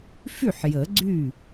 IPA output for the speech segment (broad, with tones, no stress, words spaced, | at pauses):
fy˥˩ħ jə˨˩˦ɡ͡ǀy˥˩